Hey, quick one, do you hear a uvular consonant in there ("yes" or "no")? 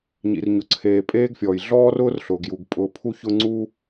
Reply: no